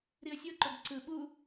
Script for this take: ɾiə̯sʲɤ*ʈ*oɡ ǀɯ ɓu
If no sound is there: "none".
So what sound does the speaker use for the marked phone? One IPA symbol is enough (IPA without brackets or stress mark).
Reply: ǃ